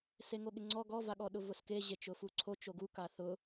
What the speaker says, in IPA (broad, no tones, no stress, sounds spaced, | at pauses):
s e ŋ o ɠ ɪ ŋ͡ǀ ɔ ɡ ɔ v a ɠ ɔ ɗ ʊ v ʊ s k e ʑ e t͡ʃ ʊ f u ǀʰ o t͡ʃ o ɡ u k a θ ʊ